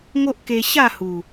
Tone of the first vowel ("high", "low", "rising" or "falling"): high